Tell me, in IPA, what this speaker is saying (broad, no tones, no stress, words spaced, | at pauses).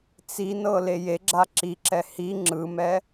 t͡sinɤ lejeɡ͡ǁa ǁiǁɛ hi ŋ͡ǁɯmɛ